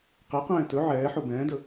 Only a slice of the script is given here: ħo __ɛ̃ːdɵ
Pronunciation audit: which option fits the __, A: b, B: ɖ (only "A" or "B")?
A